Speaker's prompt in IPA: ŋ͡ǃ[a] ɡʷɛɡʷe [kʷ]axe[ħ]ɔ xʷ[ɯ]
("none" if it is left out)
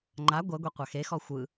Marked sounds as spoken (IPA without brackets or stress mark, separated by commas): a, qʷ, x, ɯ